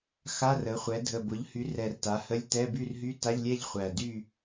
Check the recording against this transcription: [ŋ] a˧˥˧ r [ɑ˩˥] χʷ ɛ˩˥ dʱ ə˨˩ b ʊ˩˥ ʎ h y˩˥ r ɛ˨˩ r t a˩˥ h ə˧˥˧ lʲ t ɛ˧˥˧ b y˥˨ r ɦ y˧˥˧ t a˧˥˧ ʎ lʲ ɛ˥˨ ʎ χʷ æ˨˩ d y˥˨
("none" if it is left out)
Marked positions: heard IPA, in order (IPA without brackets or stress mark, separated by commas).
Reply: x, ə˩˥